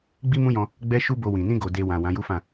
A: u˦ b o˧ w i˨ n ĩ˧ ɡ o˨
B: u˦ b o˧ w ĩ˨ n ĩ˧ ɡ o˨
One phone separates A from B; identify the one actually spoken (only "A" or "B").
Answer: B